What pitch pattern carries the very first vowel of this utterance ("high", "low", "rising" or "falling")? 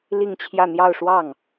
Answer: falling